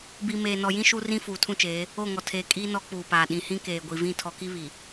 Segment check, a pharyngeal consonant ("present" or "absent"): absent